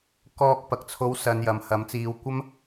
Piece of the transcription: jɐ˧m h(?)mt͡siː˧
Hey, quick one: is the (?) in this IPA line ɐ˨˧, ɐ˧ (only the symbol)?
ɐ˨˧